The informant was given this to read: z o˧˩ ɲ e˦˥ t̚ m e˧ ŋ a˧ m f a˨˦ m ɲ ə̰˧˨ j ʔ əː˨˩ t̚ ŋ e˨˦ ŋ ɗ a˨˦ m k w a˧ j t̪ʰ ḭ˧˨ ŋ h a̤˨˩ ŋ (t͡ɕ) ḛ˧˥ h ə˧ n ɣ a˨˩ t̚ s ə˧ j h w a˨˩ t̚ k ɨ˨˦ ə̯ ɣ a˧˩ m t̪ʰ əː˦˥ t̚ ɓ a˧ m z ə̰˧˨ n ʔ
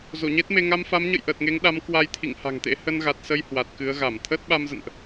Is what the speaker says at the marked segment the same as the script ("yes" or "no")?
no